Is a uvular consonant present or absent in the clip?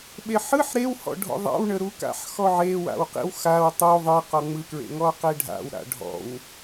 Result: present